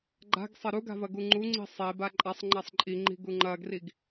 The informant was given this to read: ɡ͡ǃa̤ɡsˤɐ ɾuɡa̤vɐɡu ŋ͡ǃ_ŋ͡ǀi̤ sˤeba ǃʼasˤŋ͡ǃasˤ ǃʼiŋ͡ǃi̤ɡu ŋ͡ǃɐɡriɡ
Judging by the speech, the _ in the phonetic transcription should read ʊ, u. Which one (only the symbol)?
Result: u